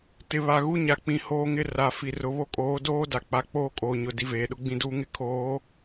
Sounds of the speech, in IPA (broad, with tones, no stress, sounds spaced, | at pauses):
t ɪ˨ β a˨ ɣ u˦ ɲ a˨ k͡p ĩ˨ h oː˦ ŋ ɪ˦ r a˨ f i˨ r ʊ˨ β o˦ kʼ oː˨˦ d oː˦ d a˨ k͡p a˨ k͡p oː˦ kʼ oː˨ ɲ ʊ˨ d i˦ v eː˨ ɗ ʊ˦ ɡ͡b ĩ˦ d uː˦ ŋ ɪ˦ kʰ oː˨˦